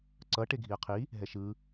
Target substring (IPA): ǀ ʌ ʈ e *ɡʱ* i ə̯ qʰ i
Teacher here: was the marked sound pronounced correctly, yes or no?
yes